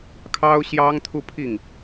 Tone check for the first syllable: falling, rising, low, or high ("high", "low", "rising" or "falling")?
high